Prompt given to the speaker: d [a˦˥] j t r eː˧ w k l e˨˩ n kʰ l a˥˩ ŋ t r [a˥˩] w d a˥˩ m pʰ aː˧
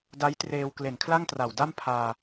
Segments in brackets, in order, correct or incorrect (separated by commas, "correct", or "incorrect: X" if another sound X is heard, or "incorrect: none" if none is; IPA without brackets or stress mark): correct, incorrect: a˨˩